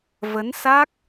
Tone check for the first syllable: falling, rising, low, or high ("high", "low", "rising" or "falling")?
rising